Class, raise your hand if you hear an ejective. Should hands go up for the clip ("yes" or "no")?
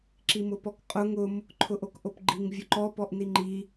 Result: yes